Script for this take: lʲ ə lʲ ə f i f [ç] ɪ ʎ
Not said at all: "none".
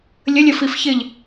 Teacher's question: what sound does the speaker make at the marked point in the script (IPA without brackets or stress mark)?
ç